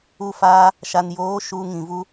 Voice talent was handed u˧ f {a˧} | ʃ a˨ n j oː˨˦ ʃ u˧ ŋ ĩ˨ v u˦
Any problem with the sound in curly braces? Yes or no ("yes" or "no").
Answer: yes